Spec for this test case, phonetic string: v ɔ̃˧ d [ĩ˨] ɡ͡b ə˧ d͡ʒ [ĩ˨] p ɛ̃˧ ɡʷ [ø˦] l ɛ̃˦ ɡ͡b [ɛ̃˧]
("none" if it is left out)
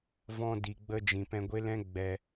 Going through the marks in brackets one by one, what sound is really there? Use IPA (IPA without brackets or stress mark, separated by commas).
i˨, ĩ˨, e˦, ɛ˧